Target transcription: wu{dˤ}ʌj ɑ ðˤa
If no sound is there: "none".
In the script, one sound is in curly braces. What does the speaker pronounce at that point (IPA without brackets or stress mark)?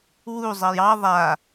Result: zˤ